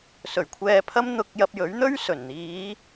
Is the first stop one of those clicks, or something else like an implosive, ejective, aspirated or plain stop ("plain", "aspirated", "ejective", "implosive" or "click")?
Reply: aspirated